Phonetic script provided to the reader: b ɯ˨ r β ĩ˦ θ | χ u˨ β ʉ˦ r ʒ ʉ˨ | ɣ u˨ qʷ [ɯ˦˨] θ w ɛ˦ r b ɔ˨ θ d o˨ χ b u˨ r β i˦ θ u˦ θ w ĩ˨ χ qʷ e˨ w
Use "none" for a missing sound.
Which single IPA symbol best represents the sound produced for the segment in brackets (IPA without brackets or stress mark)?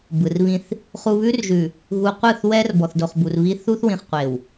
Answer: ɯ˦˨